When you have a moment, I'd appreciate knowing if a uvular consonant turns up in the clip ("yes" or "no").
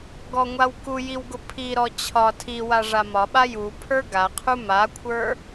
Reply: yes